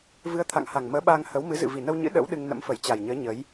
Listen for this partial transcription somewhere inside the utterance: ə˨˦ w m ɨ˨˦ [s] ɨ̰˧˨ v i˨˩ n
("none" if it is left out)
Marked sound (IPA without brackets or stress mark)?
z